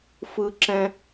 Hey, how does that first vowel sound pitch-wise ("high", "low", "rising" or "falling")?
high